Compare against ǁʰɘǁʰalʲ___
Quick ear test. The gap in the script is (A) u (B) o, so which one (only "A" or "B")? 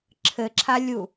A